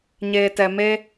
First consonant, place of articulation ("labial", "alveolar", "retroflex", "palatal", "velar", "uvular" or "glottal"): palatal